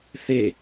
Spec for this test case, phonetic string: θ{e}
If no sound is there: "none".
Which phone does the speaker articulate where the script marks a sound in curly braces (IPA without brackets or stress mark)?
e